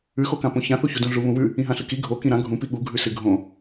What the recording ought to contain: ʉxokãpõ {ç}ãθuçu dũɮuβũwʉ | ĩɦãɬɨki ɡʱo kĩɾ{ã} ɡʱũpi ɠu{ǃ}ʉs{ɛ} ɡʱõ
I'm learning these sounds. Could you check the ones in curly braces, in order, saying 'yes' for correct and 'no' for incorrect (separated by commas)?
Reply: yes, yes, no, no